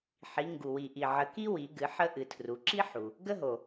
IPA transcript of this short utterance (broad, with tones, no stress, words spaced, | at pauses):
ħi˨˦ ŋɡu˨ wi˨ʔi˨ʕə˨˦ki˥ wi˨˦ɡɨ˨˦ ħə˥ ʔɨ˨˦tʰru˨˦ ǁi˥ħu˨ | ɡə˥ɦo˨